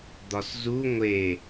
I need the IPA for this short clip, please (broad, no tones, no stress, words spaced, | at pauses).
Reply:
d̪ɒszu ŋʷe